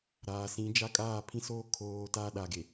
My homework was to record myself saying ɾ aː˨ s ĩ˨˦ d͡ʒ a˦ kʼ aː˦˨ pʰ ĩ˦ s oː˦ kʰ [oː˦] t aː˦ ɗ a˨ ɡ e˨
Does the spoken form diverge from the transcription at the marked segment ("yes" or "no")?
yes